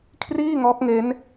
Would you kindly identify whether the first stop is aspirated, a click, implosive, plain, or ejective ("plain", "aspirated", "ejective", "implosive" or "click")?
aspirated